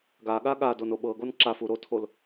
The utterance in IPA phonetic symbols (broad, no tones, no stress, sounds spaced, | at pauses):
ɡ a ɠ a ɠ a d o n o ɓ ɤ ɡ o n ǁ a f u ɾ o tʰ o l